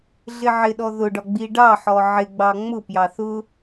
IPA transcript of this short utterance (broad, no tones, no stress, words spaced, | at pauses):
ɮɪʕɪɗɔ ðʊɖɒɡ͡bi ɖɑħɔ ʕɪɡ͡bɑ ŋ͡mʊpjɑ θʊ